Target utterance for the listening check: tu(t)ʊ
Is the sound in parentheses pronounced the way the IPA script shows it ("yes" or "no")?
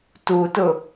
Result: yes